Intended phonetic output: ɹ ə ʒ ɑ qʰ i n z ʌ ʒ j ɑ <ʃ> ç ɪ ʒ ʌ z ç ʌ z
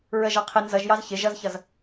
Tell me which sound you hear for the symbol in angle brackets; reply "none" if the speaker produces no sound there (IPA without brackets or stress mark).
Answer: z